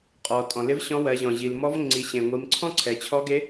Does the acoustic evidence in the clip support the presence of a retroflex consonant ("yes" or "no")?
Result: no